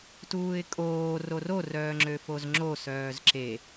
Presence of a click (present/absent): present